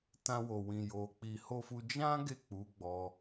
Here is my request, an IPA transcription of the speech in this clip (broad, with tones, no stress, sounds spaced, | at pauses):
t ã˧ w o˨ w ĩ˨ j o˨ k͡p i˨ h o˧ f u˧ d͡ʒ ã˦ ɡ e˦˨ k͡p u˨˦ ɡ͡b ɔ˧